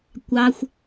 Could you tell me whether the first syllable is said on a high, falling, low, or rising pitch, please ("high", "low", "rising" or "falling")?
low